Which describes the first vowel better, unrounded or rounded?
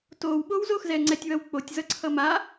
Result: rounded